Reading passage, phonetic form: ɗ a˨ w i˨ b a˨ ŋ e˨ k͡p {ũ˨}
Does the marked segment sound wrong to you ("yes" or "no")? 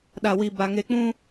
yes